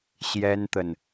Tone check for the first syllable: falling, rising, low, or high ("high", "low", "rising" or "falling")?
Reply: high